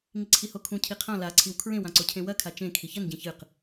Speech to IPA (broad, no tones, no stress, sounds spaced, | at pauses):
ŋ i ǀʰ i h o kʰ ũ cʰ i qʰ ã l a ǀʰ i w kʰ ɹ ẽ w ã ǀ o cʰ ẽ w ɐ kʰ a t͡ʃ ẽ kʰ i ç ɐ n ɟ ẽ ç ɨ q